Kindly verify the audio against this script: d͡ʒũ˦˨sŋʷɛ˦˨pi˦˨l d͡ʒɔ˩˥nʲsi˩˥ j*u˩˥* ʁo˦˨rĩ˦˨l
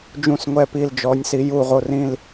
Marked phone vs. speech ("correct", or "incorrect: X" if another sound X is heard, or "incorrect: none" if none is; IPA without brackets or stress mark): incorrect: u˦˨